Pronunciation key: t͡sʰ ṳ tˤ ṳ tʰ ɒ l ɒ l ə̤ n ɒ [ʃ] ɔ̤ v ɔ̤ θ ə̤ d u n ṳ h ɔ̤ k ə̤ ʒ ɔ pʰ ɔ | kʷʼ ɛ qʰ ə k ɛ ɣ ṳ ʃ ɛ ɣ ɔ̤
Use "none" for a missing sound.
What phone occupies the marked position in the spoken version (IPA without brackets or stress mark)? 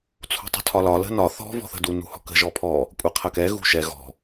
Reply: θ